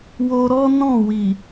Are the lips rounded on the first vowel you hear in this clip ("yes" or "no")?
yes